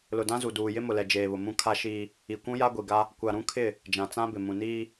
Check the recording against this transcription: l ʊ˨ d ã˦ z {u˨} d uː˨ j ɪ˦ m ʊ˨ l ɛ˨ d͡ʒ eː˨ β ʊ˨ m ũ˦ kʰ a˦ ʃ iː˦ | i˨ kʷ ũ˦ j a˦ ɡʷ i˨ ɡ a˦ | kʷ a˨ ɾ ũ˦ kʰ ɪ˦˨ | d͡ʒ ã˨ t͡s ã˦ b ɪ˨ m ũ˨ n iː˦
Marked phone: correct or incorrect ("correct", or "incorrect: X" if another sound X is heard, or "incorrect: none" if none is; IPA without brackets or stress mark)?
correct